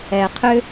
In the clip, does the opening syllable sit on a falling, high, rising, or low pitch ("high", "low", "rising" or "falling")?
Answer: low